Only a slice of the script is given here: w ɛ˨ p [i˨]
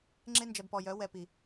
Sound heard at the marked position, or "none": i˨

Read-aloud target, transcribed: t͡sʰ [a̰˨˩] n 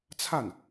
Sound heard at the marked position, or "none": a˥˩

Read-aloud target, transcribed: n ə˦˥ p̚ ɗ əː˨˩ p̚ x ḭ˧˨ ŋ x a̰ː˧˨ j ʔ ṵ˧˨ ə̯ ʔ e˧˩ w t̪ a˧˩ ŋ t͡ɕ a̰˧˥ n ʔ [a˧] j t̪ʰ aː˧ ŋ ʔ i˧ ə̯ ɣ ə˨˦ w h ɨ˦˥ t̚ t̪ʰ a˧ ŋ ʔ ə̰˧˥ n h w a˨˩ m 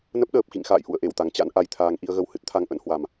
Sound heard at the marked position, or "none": a˧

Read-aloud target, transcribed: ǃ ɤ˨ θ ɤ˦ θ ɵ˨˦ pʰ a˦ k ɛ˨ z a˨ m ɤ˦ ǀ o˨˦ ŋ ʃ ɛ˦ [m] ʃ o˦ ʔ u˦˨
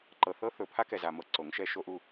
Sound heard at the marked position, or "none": none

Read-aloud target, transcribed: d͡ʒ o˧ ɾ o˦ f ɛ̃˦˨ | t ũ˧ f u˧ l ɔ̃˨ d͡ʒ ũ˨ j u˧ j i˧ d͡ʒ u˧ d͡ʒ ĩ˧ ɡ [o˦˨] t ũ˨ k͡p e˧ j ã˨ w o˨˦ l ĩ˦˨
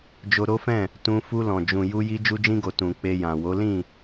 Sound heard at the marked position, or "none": o˨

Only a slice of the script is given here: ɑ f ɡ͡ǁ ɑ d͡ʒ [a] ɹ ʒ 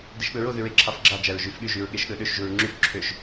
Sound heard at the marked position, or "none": æ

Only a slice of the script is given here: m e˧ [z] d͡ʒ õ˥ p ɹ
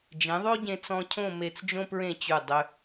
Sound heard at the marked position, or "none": t͡s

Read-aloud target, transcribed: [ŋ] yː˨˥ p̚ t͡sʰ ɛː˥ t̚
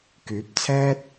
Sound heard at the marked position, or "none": k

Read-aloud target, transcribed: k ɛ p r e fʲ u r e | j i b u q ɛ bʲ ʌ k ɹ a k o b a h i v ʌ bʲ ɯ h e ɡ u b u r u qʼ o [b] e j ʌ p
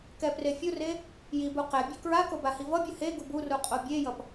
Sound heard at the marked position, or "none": bʲ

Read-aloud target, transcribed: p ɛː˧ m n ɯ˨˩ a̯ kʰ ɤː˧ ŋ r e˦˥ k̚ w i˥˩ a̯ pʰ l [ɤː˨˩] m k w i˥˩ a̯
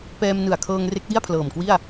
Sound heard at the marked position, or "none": ɤː˨˩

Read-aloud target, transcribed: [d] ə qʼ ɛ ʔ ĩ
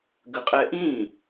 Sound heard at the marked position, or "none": ɡ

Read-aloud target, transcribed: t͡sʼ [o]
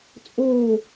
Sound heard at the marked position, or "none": o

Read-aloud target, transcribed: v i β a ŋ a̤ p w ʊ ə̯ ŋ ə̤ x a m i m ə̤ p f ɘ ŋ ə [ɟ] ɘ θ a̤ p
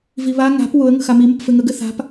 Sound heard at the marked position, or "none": ɡ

